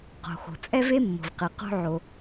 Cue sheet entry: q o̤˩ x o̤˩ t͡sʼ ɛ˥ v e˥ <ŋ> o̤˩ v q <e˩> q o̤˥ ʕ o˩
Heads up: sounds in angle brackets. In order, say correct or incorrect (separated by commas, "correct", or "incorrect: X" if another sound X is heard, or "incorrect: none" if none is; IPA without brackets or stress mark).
incorrect: mː, correct